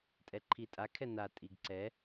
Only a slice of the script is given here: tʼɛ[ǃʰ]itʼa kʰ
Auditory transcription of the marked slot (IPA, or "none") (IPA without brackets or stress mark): ǃʰ